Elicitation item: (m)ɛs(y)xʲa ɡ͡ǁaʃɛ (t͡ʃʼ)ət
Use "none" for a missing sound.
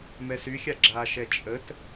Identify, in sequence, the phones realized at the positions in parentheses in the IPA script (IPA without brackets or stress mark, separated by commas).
m, y, t͡ʃʼ